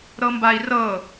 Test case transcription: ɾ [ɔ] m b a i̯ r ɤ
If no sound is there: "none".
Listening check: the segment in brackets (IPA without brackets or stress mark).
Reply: ɤ